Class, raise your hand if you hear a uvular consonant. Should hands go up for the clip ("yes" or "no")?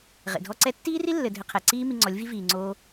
yes